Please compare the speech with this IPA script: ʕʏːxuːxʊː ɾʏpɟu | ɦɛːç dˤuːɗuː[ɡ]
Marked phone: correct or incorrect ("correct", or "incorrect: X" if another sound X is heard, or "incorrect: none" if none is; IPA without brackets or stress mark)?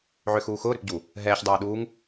incorrect: ŋ